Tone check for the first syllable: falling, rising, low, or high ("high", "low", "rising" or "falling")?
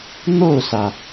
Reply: falling